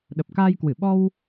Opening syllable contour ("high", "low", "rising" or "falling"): low